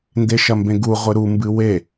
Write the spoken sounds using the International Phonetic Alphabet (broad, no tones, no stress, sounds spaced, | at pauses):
n d e ʃ ɐ m b ẽ ɡ u ʁʷ ɨ ɾ u m b ɨ w e